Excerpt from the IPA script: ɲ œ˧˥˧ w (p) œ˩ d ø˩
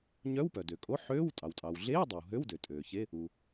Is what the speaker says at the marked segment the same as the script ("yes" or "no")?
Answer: yes